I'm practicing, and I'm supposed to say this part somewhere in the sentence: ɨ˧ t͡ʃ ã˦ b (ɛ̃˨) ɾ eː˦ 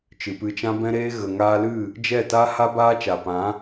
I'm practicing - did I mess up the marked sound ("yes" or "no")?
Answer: yes